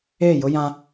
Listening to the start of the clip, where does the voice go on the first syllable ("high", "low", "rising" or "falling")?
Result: falling